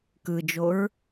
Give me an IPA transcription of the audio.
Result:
k ɯ d͡ʒ o ɹ

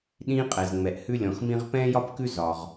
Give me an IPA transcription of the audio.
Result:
ɗ ĩː˦ qʼ ɛ˨ z ŋ͡m ɛ˨ ʔ h ʉ˦ lʲ ɔ̃˨ x m ĩ˦ ʁ p ɛ̃ː˥ j ɒ˥ p k ʉ˥ z ɒ˨ ʁ

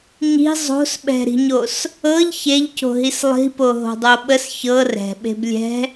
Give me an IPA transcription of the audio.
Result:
ɲ i̤ zˤ o̤ s ɓ ɛ̤ ɾ i̤ ɲ o s | ɤ ʎ ç e ʎ c o̤ ɦ i s lˠ i̤ p o ɦ o̤ dˤ o ɓ ə s ç ɤ r ɛ̤ ɓ e̤ b lʲ ɛ̤

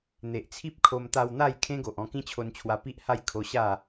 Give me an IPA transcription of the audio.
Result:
n̪ e˨ ʔ t͡sʰ i˦ p̚ kʰ o˧ m t̪ a˧ w n̪ a˥˧ j kʰ ẽ˦ ɡ o˨ ʔ ɔ̃˧ k ĩ˦ t͡ɕʰ o˧ n t͡ɕʰ w a˧ p i˦ ʔ h a˥˧ j kʰ o˧ ɕ a˥˧

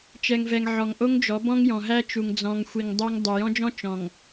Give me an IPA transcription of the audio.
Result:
t͡ʃ ɛ˨ ŋ v ɛ˨ ŋ ʕ ɔ˨ ŋ ʔ o˦ ŋ d͡ʒ ɔ˨˦ b ɔ̃˦ ŋ j ɔ̃˨ ɦ æ˦ t͡ʃ u˨ ŋ d͡z ɔ̃˨ ŋ xʷ i˨ ŋ dˤ o˦ ŋ dˤ u˨ j ɔ̃˦ d͡ʒ ɔ̃˦ t͡ʃ ɔ̃˨ ŋ

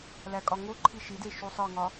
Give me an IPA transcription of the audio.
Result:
l æ kʼ ɒ ŋ o ǃʰ i ʃ i d e ʃ u sˤ ɒ ŋ ɒ

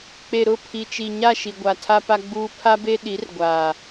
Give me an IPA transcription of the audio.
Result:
k͡p e˨ ɾ ʊ˦˨ pʰ i˨ t͡ʃ i˨ ɲ a˦˨ ʃ i˨ ɡʷ a˨ tʰ a˦ p a˦ ɡ͡b uː˦ pʰ a˦ b e˦ ɗ i˨˦ r ɡʷ aː˨

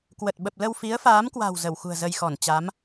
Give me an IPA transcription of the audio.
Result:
k w ə˨˩ t̚ ɓ ə˨˩ p̚ l ə˧ w f i˨˦ ə̯ f aː˨˦ m k w a̤˨˩ w z ə˧˩ w x ṳ˨˩ ə̯ z ə˧ j x ɔ˧˩ n t͡ɕ a˨˦ m

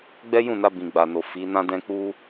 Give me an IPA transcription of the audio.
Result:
ɡ͡b ɛ˦ j ũ˦˨ n a˧ b ĩ˨ ɡ͡b a˨ n o˨ f i˨˦ n ã˦ d ɛ̃˦ k͡p u˦

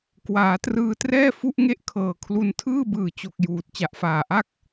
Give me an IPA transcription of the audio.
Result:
k w aː˩˦ t r ɯː˧ t r ɛː˥˩ f u˥˩ ʔ ŋ e˥˩ ʔ kʰ ɤː˨˩ kʰ l u˧ n tʰ ɯː˥˩ b ɯː˨˩ t͡ɕ o˨˩ k̚ j uː˨˩ t̚ t͡ɕ a˨˩ ʔ f aː˨˩ ʔ a˥˩ k̚

